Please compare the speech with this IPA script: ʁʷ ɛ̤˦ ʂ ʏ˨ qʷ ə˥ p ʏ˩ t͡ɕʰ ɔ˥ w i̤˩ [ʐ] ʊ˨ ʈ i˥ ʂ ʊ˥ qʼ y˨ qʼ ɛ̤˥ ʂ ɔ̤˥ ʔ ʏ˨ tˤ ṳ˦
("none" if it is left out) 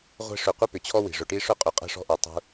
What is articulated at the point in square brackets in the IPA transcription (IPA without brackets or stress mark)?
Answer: ʐ